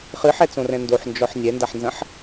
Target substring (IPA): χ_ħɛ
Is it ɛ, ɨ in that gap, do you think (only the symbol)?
ɨ